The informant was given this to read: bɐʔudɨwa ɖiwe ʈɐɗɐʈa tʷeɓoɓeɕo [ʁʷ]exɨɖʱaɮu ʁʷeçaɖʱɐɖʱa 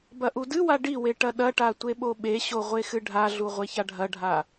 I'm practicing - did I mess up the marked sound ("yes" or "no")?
no